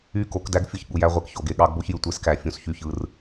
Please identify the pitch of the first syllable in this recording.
falling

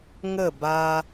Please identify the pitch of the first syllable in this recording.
falling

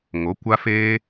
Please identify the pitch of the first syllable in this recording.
rising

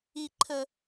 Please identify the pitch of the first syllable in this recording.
low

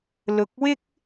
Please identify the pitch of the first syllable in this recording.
low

